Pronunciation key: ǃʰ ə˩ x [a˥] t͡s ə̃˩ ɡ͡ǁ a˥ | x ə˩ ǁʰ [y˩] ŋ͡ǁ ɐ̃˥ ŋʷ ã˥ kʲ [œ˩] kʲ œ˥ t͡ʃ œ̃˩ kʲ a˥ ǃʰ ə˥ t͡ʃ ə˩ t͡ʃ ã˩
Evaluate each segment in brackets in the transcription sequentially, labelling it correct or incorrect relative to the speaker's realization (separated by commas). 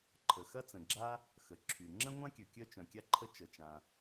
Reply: incorrect, correct, correct